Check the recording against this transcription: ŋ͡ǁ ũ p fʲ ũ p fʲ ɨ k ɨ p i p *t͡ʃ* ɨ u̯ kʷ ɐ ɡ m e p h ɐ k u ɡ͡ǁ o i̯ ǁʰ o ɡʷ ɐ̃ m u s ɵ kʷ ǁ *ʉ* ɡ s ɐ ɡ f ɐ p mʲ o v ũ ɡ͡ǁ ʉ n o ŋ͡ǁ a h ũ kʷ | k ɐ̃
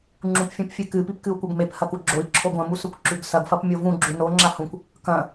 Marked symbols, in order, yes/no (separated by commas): no, yes